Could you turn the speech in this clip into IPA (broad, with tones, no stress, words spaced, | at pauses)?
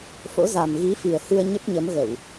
fo̰˧˥za˨˩m ɣi˨˦fi˨˩ə̯hɨ˧ə̯ ɲə˦˥p̚ɲə˨˦mɣə˧˩˨w